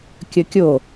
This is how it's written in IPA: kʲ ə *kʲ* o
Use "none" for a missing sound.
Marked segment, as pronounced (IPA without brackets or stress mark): kʲ